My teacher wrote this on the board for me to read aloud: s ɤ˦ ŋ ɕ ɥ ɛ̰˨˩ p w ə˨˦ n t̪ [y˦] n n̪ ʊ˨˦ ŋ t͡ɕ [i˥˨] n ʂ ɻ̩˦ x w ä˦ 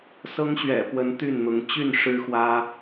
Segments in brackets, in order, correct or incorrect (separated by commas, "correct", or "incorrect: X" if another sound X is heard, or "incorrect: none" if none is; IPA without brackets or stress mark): incorrect: y˥˨, incorrect: y˥˨